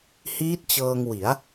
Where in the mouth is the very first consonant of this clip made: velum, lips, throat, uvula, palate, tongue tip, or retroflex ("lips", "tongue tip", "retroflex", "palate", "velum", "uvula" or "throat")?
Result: throat